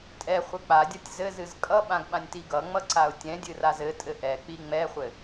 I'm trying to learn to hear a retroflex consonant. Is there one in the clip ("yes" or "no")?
no